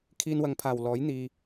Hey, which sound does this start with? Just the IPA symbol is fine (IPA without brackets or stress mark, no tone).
kʰ